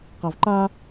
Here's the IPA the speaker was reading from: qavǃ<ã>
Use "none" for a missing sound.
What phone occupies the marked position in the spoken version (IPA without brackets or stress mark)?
a